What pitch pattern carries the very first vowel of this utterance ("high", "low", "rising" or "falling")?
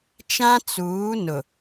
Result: high